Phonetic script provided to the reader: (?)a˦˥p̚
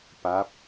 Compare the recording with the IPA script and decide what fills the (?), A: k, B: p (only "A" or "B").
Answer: B